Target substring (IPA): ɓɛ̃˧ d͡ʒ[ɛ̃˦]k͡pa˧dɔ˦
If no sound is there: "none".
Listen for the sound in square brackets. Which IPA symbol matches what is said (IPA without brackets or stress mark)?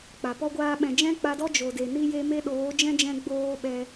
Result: ɛ̃˦